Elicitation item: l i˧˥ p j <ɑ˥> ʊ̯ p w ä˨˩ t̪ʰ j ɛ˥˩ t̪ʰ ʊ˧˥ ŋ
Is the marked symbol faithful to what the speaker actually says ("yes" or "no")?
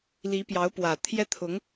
no